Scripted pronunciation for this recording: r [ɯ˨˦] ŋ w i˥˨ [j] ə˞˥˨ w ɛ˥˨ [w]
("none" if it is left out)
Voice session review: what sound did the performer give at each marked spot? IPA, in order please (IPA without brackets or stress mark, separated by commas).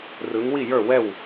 ɯ˨˦, j, w